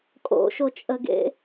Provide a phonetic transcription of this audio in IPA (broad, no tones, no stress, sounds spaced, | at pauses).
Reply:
kʼ o̰ ʃ o t͡ʃʼ ə ɡ ḛ